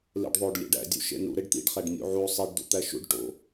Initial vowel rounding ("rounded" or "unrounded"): unrounded